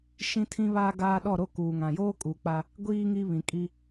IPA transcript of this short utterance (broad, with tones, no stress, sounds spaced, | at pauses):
ʃ ĩ˦ tʰ ĩ˦ β aː˦ ɡ aː˦ ɗ ɔ˦˨ ɾ o˦ k uː˨ ŋ ã˨ j oː˦ kʼ uː˨ k͡p a˦ | ɡʷ iː˦ ŋ i˦ β ĩ˨ kʼ i˦